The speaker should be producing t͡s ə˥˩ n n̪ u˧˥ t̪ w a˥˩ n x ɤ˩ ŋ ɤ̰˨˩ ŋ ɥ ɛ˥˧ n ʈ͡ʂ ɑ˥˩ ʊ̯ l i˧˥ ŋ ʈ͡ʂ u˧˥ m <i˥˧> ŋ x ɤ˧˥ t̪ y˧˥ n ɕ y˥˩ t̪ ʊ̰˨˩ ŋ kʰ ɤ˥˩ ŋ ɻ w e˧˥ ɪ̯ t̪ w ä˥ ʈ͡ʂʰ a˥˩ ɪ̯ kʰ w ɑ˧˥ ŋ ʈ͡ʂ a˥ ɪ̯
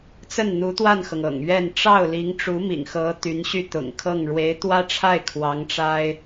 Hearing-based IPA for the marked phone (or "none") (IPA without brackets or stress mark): ḭ˨˩